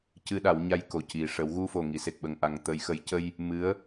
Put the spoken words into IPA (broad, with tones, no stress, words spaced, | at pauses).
cɨ˧ɗa˨˩˦wɲa˧j ko˨˩ci˨˩ ʂə˨˩˦w ɣu˧fo˨˩ŋi˨˩˨ se˨˩k̚ɓə˨˩ŋʔa˨˩ŋ t̪ə˨˩˨jxə˨˩˦jcə˧j | mɨ˧˥ə̯